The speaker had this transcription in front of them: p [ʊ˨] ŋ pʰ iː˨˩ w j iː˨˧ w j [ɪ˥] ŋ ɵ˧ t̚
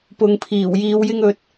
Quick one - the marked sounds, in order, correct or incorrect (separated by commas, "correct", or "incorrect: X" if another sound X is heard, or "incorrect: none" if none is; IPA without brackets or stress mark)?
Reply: correct, correct